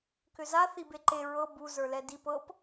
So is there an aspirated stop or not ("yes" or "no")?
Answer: no